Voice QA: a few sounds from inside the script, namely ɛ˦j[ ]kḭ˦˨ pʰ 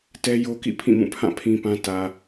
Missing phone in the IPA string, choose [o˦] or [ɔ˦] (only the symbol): o˦